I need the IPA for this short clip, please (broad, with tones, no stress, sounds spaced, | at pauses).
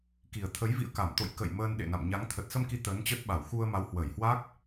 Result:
k i˨˩ ə̯ t̪ʰ ə˨˦ j v ḭ˧˨ ə̯ k a˧˩ m t̪ o̰˧˨ j k ə̰˧˨ j m əː˧ n ɗ ḛ˧˨ n a̰˧˨ m ɲ a˨˦ ŋ t̪ʰ ə˨˩ t̚ s ə˧ m k i˨˦ t̪ əː˨˦ n t͡ɕ ə˦˥ t̚ ɓ a˧˩ w x u˧ ə̯ m a˨˦ w h w ə˧˩ j h w a˦˥ k̚